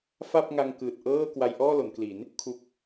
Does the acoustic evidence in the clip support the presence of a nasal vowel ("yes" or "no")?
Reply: no